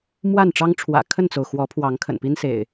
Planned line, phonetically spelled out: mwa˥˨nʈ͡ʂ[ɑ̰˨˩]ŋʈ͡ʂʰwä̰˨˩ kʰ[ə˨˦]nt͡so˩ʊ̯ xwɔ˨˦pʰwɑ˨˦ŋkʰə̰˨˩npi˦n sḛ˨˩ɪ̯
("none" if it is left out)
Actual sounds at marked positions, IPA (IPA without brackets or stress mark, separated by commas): ɑ˦, ə˥˨